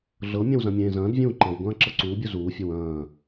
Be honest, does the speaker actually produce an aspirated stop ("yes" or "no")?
no